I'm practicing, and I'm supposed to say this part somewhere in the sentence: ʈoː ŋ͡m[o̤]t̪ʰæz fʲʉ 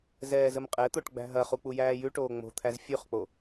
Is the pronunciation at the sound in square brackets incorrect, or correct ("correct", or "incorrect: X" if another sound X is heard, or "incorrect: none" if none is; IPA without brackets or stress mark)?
correct